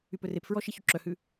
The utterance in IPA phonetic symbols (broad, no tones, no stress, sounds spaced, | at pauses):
y p ɵ r e p f ɹ ɔ ʃ i ç y ǁ œ h ʉ